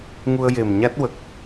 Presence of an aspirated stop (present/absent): absent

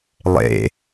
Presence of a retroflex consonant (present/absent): absent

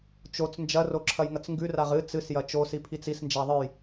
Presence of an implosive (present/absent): absent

